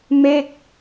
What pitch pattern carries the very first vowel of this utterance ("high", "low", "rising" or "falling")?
falling